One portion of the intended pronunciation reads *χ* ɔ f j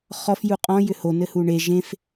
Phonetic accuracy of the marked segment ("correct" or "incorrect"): correct